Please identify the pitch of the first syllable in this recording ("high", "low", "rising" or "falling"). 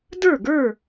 falling